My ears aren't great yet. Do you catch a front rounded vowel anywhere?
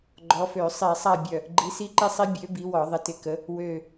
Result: yes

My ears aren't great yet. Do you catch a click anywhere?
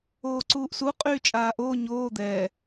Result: yes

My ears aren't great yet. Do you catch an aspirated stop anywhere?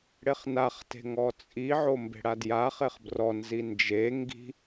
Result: no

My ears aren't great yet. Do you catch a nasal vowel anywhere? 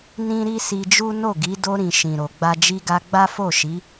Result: yes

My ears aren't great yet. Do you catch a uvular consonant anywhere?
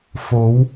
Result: no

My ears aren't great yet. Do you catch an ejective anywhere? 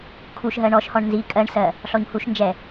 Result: yes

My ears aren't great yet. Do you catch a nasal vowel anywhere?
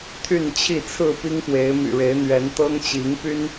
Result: no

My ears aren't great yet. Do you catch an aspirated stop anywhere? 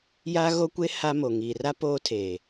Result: yes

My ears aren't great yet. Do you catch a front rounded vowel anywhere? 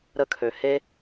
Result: yes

